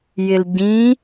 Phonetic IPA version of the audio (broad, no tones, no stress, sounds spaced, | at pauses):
j ɪ l ɟ ĩ